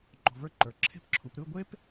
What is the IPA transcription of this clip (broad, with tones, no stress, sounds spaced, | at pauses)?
ŋ͡ǃ ɔ̤˧ v ə˞˥ ǃ ə˞˩˧ ǁʰ e̤˥˧ p ǁʰ u˩˧ p ɾ ɯ˥˧ ɡʷ e˥ p